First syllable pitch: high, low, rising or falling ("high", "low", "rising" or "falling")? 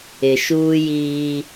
low